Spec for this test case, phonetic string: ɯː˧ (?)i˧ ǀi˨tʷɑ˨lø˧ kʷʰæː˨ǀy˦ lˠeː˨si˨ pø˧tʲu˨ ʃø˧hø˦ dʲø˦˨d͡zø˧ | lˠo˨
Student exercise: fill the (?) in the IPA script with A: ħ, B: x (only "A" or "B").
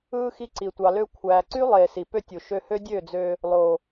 B